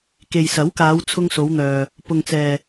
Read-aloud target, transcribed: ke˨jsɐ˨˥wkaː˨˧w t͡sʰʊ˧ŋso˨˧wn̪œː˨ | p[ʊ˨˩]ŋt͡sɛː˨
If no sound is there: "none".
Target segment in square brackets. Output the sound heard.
ʊ˨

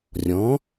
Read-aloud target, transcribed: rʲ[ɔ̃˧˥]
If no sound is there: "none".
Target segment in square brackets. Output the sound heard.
ɔ̃˩˥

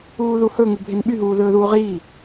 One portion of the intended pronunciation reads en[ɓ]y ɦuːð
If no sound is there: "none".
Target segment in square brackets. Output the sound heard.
ɓ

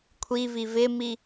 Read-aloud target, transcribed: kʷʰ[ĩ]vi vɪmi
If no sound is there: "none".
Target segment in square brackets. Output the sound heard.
i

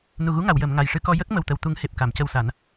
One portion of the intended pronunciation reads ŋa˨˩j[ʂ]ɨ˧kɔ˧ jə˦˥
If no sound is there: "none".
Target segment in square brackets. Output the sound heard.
ʂ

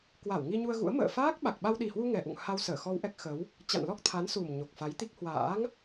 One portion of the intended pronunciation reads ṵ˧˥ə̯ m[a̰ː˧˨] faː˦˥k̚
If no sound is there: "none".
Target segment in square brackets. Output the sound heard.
ə̰ː˧˨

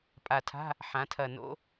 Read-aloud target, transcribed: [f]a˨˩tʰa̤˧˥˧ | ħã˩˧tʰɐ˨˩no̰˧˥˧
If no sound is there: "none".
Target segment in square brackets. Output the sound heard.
pʼ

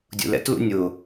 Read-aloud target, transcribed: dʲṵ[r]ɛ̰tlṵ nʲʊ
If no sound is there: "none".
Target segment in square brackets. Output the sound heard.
l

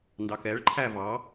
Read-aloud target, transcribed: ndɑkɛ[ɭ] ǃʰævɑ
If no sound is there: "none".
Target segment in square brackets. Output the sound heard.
ɭ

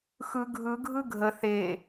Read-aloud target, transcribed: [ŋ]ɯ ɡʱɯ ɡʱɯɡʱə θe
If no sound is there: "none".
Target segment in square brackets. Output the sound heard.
x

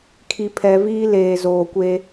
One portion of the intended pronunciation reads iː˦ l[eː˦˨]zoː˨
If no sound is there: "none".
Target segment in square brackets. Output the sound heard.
eː˨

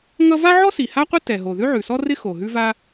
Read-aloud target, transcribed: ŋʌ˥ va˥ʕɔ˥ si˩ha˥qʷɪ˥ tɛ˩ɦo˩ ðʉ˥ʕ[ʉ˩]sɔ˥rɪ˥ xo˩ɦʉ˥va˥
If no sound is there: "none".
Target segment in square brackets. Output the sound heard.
ʉ˩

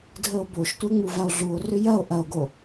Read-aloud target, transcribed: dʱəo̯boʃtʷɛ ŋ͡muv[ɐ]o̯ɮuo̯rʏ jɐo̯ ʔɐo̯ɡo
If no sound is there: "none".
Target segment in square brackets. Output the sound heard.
a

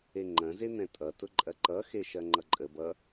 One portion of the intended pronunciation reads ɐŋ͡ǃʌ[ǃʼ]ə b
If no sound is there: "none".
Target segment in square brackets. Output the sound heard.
ǃʼ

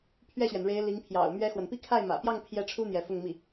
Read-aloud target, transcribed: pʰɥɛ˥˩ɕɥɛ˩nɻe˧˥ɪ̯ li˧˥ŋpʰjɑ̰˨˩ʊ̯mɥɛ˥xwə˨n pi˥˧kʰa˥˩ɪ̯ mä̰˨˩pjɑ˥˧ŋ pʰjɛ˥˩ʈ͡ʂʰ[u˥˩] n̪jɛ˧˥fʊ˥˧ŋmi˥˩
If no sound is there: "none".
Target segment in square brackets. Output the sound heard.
u˥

